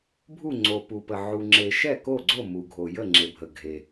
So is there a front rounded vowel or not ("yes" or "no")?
no